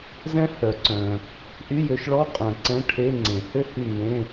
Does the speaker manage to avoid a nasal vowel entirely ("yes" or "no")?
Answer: no